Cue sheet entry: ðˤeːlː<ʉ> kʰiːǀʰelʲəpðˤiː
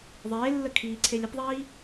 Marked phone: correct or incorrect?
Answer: incorrect